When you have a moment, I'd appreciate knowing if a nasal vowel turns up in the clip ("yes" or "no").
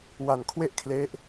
no